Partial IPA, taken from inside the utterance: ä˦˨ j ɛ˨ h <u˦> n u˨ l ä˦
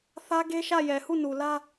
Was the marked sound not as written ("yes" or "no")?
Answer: yes